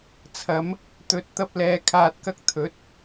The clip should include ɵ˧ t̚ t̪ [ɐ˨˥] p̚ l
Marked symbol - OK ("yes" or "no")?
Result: no